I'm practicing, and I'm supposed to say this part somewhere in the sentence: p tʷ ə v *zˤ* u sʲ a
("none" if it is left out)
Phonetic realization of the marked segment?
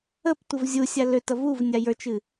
zʲ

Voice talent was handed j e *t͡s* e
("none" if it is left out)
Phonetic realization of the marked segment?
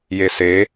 s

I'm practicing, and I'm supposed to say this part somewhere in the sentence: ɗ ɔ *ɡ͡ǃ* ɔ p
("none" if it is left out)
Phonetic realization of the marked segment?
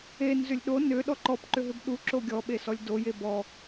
ǃ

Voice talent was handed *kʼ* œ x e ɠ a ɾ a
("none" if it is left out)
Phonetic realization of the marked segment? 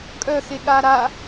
kʼ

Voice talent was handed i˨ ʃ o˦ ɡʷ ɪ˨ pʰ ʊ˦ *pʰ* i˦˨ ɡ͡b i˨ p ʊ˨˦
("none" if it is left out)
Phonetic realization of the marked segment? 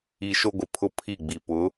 pʰ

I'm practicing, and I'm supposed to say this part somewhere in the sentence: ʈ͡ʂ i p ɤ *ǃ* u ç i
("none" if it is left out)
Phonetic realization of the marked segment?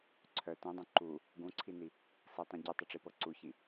ǀ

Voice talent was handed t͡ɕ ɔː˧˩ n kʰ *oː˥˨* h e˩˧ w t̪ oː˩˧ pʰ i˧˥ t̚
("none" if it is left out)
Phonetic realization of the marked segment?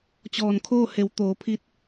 oː˥˨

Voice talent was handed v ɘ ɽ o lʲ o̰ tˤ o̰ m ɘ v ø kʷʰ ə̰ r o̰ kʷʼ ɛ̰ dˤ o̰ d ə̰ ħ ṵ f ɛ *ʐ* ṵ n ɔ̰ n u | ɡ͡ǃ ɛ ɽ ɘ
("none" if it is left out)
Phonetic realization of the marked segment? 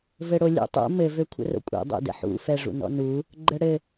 ʐ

